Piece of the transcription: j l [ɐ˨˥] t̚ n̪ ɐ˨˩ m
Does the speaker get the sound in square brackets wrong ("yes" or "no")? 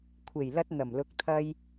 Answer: yes